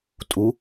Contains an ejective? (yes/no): yes